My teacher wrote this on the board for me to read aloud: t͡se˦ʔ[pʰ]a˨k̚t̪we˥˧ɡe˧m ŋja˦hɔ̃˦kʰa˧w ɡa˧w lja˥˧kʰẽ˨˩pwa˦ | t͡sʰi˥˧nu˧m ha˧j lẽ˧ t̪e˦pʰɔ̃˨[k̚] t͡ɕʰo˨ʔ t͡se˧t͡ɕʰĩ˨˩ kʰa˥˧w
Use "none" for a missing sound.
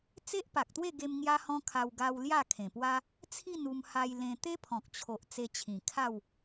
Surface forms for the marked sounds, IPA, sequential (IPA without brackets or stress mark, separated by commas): p, k̚